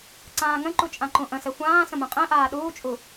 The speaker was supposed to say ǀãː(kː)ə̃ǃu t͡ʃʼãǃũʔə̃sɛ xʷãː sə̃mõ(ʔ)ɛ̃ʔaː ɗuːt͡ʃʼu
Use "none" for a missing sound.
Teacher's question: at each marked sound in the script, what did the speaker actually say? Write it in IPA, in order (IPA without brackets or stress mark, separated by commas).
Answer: ŋ, qʼ